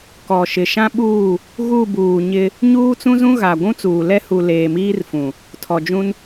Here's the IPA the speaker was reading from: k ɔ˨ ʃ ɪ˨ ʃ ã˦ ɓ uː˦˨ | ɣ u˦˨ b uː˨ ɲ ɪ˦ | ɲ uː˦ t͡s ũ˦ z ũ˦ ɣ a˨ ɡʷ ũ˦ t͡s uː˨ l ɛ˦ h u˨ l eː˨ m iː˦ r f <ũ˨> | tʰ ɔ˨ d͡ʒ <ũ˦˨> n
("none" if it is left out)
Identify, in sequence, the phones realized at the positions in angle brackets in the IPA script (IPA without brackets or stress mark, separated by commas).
ũ˨, ũ˦